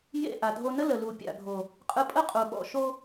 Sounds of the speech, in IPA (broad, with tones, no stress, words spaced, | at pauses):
jḛ˦˨ ʔa˨dʱo˧nə˦ lə˨lu˨pʲa̰˨ɡʱo˨ | qʼɯ˧pʼə˦qʼu˨ ɓɔ̰˨ ʃo˧